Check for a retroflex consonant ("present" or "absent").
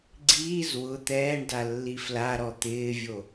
present